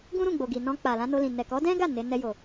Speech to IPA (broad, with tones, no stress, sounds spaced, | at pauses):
ɡ ũ˦ ɾ ũ˦˨ ɡ͡b o˨ ɡ i˨ n ɔ̃˧ k͡p a˨ l ã˧ n o˧ l ĩ˨ n ɛ˨ k ɔ˨˦ d ɛ̃˦ ɡ a˦˨ n e˨˦ n ɛ˧ j o˨